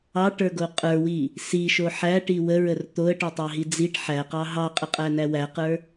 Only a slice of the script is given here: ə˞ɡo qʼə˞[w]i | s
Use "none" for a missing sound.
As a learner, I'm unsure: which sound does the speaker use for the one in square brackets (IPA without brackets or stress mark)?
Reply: w